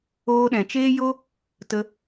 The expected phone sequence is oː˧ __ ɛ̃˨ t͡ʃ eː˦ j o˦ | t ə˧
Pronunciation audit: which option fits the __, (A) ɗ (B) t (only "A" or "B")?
A